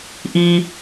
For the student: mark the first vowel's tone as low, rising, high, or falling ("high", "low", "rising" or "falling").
low